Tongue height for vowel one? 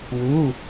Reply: high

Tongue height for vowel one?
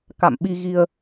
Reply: low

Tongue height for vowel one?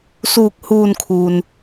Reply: high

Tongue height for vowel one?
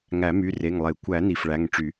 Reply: low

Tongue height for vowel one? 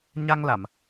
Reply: low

